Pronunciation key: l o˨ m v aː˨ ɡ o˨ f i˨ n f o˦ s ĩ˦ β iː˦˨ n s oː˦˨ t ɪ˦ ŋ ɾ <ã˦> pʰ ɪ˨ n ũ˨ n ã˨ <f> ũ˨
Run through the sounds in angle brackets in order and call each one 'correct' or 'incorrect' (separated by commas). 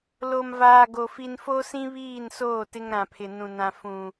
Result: incorrect, correct